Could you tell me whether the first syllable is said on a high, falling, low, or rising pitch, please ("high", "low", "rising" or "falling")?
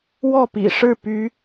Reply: falling